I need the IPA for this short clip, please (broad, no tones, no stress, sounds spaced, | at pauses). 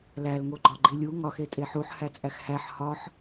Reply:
l æ l ŋ o ɡ͡ǃ ɒ ɡ͡ǃ i lʲ u ŋ ɒ x e tʼ e ħ u ħ h æ t͡sʼ æ x h æ ħ h ɒ ħ